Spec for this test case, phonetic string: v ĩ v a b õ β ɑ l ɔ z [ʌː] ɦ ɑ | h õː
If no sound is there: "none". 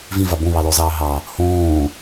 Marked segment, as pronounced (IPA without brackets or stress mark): ɑː